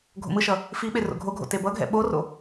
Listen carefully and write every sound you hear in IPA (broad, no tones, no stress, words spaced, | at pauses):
ɡʱo̰mɯʃʌ | fiɓe ro̰ɡʱoɡʱo̰ tebʌɡʱɛ̰ ɓoro̰